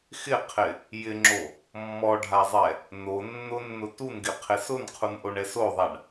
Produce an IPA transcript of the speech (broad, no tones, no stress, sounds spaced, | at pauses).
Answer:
x ɪ qʰ ɪ | j ɪ ŋ͡ǁ o | mː ɔ ɖʱ a zˤ ɛ | n o nː ʊ nː ʊ t u n ɡ ɪ qʰ ɪ s ʊ n qʰ u n ʔ o ɳ ɛ s o ðˤ a ɳ